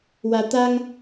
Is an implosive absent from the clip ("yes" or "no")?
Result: yes